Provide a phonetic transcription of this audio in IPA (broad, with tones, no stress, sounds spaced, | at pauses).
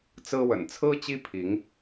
t͡s ɹ̩˦ w ə̰˨˩ n t͡sʰ ɹ̩˦ t͡ɕ i˦ pʰ i˨˦ ŋ